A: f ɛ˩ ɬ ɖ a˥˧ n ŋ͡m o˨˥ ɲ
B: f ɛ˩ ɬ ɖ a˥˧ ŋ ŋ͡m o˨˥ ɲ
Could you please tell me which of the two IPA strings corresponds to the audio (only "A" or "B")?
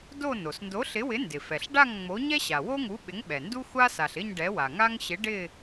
B